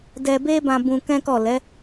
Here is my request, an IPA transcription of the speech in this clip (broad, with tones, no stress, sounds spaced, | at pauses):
d ɛ˧ b e˦ b ã˧ b ũ˧ k ɛ̃˦ k ɔ˦˨ l ɛ˨˦